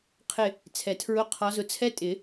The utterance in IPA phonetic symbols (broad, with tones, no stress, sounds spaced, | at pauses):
qʰ ɪ˦˨ | t͡sʰ ɛ˨˩˦ tʰ ɹ ʊ˧˥˧ qʰ ɒ˨˦ z ʊ˨˦ t͡sʰ ɛ˦˥ tʼ ɪ˨˩˦